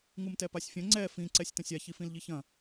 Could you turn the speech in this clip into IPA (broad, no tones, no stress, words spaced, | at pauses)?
ŋumtɛpasʲfʲɐ̃ ŋ͡ǀɛ fĩ ǀɛsʲtɐ̃sʲa çifĩlʎiçɐ̃